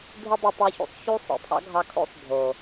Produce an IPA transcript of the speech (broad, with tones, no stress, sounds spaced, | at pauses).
dʱ ɯ˦ dˤ u˧ tˤ u˧ ç ṵ˧ sˤ ç u˦ sˤ ḭ˨ pʰ ɑ̰˦ ɡʱ ɑ˧ kʰ o̰˦ sˤ bʱ o˨